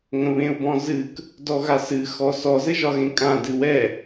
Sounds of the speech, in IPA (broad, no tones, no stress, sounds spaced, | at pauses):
ŋ ə̃ β ẽ ʊ̯ b ɔ̃ z ɨ k | d ɔ ɣ a s ɨ x ɔ s ɔ z ɘ ʒ ɒ ɣ ẽ kʼ ã d ɨ w ɛ